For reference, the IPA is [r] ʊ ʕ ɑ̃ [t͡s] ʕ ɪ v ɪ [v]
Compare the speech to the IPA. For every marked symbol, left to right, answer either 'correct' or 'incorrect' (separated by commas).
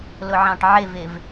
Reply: incorrect, incorrect, correct